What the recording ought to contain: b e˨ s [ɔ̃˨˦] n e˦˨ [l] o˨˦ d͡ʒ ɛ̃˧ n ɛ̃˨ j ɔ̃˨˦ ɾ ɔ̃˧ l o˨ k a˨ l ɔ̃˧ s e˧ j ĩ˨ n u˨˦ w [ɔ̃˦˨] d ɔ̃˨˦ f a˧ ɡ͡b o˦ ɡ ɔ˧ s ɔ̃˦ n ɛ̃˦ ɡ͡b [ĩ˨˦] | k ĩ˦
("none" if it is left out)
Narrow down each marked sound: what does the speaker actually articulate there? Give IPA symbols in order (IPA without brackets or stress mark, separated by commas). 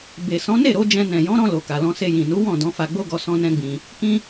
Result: ɔ̃˨˦, ɾ, ɔ̃˦˨, ĩ˧